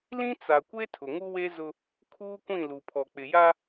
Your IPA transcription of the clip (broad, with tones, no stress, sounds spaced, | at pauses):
l ĩ˦ t͡s a˨ kʷ e˦ tʰ ʊ˨ ŋ u˦ w e˦ z ʊ˦ | kʰ uː˦ kʷ ĩ˦˨ l u˨ pʰ ɔ˨ k͡p ɪ˨ j a˦